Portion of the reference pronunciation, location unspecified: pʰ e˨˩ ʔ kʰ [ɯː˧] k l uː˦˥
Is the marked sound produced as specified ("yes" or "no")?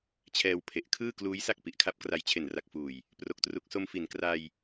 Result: no